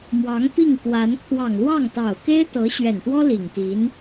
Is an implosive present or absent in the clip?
absent